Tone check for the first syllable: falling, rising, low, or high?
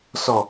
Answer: low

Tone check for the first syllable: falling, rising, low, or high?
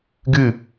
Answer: falling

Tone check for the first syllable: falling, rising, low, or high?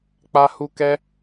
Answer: high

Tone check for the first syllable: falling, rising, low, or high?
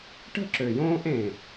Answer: high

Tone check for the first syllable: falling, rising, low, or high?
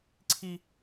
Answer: high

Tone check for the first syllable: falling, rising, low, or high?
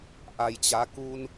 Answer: low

